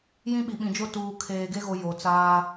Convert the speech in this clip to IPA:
j ĩ˦ ɓ i˨ ɓ ĩ˨ d͡ʒ o˦ t uː˨ kʰ eː˨ ɡ e˦ ɣ o˨ j o˨ t͡s aː˦

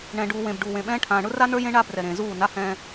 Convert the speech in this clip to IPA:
ɳ ɛ̃˨ ɖ uː˨ w ẽ˨ b ɖ uː˨ w ẽ˨ ɓ ɛ̃ː˦ ʈʰ ãː˨ ɳ ʊ˦ r a˦ n ə˞˦ j ẽ˦ ɳ a˦ b r ɛ˨ ɾ ẽː˨ z uː˦˨ n a˦ h ɛ̃ː˦

